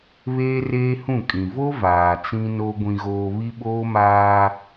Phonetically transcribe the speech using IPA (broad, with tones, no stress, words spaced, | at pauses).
βeː˦reː˦hũ˦˨kʼĩ˨ vo˦ vaː˨t͡sĩ˦no˦ ɡʷĩ˨ɣoː˨ βi˦ɓoː˦maː˦